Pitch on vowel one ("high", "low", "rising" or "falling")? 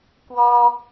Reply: high